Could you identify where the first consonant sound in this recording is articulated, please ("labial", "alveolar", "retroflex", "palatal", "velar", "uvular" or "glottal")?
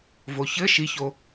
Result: labial